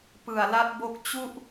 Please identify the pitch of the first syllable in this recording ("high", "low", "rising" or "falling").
low